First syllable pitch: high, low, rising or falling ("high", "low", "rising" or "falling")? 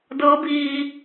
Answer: rising